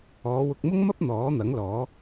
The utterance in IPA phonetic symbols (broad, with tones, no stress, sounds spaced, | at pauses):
ɔː˨˧ w ʊ˧ k̚ m ʊ˥ ŋ m ɐ˥ p̚ n̪ ɔː˨˥ n̪ ɐ˨˥ ŋ l ɔː˨˥